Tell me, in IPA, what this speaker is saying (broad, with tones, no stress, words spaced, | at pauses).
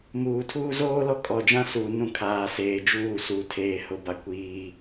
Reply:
muː˨tʰuː˦ zoː˦lɔ˦ kʼɔ˨d͡ʒã˦suː˨ nũ˦˨ kʰaː˨seː˨ d͡ʒuː˦˨su˨tʰeː˨ hʊ˨ba˨ kʷiː˦